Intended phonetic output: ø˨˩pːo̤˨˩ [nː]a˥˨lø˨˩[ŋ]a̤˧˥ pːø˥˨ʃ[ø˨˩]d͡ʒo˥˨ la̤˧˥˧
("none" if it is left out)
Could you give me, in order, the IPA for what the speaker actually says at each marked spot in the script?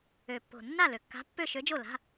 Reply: nː, kː, ø˧˥

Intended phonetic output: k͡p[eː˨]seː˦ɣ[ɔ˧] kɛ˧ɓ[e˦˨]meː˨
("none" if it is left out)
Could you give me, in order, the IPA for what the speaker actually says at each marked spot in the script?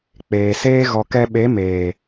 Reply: eː˨, ɔ˧, e˨˦

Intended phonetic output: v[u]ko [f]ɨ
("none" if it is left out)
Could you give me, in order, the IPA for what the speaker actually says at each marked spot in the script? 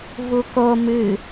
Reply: u, m

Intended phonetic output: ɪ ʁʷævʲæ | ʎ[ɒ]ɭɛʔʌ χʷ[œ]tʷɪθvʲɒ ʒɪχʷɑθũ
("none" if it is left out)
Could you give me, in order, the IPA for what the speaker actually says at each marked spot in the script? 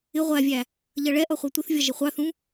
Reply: ʌ, æ

